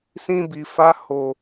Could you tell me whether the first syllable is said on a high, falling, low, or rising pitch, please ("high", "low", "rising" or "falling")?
high